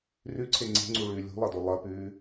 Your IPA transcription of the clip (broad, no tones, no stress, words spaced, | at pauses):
rʉǀʰe ŋ͡ǀe̤ŋ͡ǀuɭʉː lʲṳlˠɐdo lˠɐpʉː